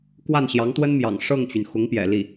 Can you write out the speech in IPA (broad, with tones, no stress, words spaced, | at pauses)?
kwa˥˩nɕjɑ˧˥ŋt̪wə˥nmjɑ̰˨˩ŋ ʂɤ˥˩ŋt͡ɕy˩n xʊ˧˥ŋpjɛ̰˨˩li˥˩